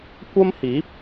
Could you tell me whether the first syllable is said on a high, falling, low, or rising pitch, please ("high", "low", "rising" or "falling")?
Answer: high